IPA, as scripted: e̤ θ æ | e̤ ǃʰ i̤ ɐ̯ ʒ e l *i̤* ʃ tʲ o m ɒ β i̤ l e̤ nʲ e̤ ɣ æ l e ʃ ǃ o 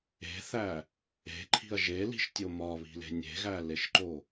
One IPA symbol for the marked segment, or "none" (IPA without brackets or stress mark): i̤